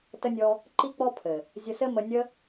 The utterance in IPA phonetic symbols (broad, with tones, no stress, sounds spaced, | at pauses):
t ə˧ nʲ ɔ˧ | ǃ i˦ k͡p ɔ˦ pʰ ɘ˨ | zʲ ə˧ s ɘ˦ m ə˧ nʲ ə˧